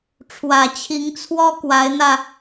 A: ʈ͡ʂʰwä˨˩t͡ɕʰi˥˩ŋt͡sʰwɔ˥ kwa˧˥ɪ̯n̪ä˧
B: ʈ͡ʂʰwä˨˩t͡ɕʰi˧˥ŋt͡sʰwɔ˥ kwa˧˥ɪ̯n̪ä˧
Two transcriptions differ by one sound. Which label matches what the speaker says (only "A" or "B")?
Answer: B